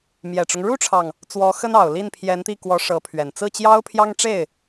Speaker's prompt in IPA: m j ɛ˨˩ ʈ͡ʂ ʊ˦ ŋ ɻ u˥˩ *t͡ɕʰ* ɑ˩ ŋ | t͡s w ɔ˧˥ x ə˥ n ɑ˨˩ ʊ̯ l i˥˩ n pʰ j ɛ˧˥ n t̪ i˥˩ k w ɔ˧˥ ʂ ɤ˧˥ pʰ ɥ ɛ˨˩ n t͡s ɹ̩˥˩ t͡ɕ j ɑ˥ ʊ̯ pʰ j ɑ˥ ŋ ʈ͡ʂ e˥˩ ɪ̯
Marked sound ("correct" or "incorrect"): incorrect